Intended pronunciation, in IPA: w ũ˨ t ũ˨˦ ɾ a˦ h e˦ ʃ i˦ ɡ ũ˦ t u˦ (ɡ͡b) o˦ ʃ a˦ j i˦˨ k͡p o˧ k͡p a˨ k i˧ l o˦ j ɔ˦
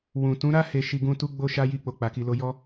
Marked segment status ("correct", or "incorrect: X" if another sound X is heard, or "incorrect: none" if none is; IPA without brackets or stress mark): correct